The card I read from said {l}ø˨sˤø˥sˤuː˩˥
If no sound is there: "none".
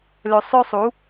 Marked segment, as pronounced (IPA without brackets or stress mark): l